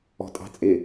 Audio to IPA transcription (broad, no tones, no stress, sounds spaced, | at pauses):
ɔ̤ tʼ ɑ̤ t͡sʼ ɪ